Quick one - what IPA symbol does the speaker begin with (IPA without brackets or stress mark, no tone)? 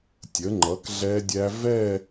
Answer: tʲ